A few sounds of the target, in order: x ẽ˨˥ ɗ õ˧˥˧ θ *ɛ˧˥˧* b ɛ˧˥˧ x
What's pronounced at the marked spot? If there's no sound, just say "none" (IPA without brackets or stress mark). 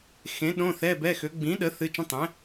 ɛ˧˥˧